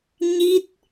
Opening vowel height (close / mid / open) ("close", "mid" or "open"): close